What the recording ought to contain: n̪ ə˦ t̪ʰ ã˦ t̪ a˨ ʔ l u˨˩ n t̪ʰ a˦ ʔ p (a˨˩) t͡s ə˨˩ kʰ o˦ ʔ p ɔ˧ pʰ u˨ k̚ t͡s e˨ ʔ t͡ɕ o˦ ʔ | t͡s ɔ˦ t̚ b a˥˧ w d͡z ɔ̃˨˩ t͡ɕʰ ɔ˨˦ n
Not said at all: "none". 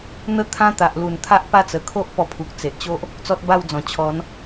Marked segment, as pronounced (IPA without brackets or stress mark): a˥˧